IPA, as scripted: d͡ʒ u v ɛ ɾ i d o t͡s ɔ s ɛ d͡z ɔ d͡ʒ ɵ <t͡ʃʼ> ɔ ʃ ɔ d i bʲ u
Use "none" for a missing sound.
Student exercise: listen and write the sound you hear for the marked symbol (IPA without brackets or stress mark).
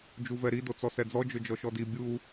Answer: d͡ʒ